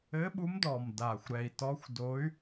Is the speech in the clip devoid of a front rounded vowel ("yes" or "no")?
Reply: no